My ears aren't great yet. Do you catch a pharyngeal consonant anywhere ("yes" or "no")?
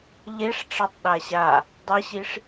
no